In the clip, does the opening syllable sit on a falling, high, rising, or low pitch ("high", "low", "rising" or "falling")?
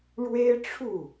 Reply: high